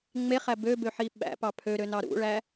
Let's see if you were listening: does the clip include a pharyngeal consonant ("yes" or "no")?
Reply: yes